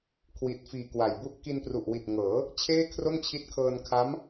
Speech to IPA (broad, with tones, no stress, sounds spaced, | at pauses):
kʰ w i˨˩ t̚ f iː˨˩ k w a˨˩ j b u˥˩ ʔ k i˧ n p r u˨˩ ʔ w i˨˩ t̚ ŋ ɤː˩˦ | t͡ɕʰ eː˥˩ kʰ r o˥˩ n t͡ɕʰ i˦˥ t̚ kʰ ɤː˧ n kʰ a˦˥ m